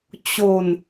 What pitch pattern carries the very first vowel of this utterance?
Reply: falling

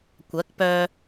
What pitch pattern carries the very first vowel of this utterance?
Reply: rising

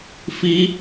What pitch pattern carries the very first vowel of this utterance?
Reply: high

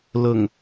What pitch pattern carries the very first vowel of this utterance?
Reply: low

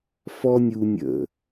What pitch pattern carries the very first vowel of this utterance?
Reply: high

